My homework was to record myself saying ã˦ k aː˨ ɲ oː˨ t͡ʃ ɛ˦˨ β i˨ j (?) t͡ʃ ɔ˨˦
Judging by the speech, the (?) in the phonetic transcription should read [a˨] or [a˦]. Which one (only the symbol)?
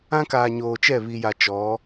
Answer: a˨